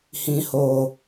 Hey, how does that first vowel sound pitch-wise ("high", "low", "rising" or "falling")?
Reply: low